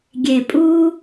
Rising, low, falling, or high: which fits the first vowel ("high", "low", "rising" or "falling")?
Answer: low